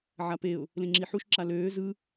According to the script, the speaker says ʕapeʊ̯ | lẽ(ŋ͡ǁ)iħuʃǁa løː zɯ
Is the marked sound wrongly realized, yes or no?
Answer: no